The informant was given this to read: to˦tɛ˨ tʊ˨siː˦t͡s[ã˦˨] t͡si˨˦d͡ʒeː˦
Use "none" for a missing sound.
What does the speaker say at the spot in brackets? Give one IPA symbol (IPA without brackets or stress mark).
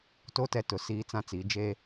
ã˦˨